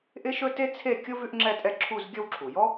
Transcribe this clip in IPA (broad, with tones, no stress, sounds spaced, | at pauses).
ʔ ɪ˥ ʃ ɵ˥ t e˥ t͡sʰ e˥˧ kʲ ʊ˥ v ʉ˥ ʔ ŋ͡ǁ ɛ˥˧ tʼ ɛ˥˧ ǁʰ u˥˧ z ɡʲ ə˥˧ w ǁʰ u˩ j ɔ˥